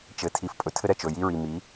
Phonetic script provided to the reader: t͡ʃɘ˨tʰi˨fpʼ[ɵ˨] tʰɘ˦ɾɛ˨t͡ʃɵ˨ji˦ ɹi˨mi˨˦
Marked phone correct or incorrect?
correct